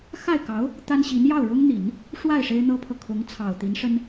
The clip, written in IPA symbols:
x a˥˩ ɪ̯ k ɑ˧˥ ʊ̯ | t̪ a˥ n ɕ i˧˥ n j ɑ˥˩ ʊ̯ ɻ ʊ˥ ŋ n̪ i˨˩˦ n | ʂ w a˥˩ ɪ̯ ʂ e˥ ɪ̯ n̪ ɤ˥ pʰ ɤ˨ kʰ ʊ˧˥ ŋ t͡sʰ ɑ˨˩ ʊ̯ t̪ i˧˥ n ʂ ə˥ n

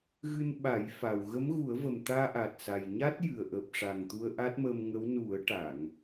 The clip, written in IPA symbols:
ɣ ɨ˧ n ɓ a˨˩˦ j f a˨˩ w ɣ ə˧˥ m ɣ u˨˩˦ ə̯ v ə˨˩ m t̪ aː˧ ʔ a˨˩ t̚ s a˨˩ j ɲ a˦˥ t̚ j ɨ˨˩ ə̯ ʔ əː˨˩ p̚ ʂ a˨˩ ŋ t̪ u˧ ə̯ ʔ a˦˥ t̚ m əː˧ m ŋ ə˧˥ w n u˨˩˦ ə̯ ʈ a˨˩˨ ŋ

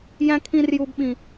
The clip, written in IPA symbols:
j æ̃˦ kʰ ĩ˦ r j u˦ b ɓ ĩ˦

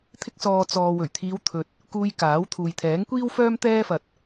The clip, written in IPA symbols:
t̪ʰ ɪ˧ k̚ s ɔː˨ t͡s ɔː˨ w ɵ˨˩ ɥ t̪ʰ iː˨˧ w t̪ʰ ɵ˨ t̚ | k uː˧ j k aː˨˥ w t̪ʰ uː˨ j t̪ʰ ɛː˨˥ ŋ kʷ iː˥ w f œː˥ m t̪ ɛː˥ f ɐ˧ t̚

